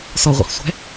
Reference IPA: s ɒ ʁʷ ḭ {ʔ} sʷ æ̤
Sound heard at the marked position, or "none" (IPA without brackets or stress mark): χ